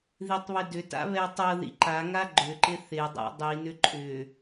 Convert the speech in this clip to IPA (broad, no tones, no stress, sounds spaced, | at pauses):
ð i tˤ β ɪ d ʏ t a̰ β ɛ tˤ ɤ ð ḭ ǃ a ŋ a ɡ͡ǃ ʏ ǃ ɪ θ ɪ dˤ a̰ dˤ i n ʏ ǃʼ ʏ